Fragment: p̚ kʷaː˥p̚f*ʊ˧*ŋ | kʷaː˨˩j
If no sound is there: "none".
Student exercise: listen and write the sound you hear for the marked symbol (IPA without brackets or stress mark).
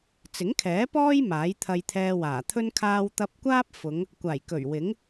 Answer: ʊ˨˧